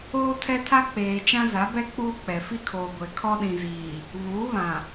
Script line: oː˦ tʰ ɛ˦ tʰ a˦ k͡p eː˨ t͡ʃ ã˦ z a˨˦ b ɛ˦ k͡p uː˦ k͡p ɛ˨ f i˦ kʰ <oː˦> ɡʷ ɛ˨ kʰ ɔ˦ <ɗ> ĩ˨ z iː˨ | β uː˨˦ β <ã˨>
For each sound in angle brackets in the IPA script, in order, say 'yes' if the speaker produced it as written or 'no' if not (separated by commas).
no, yes, yes